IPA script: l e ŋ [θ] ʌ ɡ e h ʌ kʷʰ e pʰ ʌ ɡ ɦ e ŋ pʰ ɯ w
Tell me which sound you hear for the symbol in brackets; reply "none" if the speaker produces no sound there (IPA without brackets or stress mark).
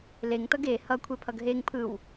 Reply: t